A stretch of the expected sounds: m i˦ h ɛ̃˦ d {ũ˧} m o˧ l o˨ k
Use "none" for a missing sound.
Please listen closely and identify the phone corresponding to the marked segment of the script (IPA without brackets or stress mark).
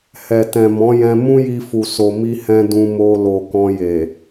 ũ˧